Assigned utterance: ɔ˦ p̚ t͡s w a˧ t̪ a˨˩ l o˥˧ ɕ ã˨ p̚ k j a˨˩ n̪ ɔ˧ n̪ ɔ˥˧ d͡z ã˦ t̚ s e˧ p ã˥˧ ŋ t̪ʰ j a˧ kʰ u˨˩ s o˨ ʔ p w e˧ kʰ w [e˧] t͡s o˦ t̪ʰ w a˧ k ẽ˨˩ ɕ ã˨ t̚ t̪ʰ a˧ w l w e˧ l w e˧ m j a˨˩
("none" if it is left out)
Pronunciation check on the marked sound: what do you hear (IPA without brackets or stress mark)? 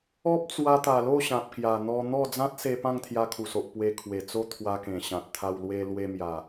e˨˩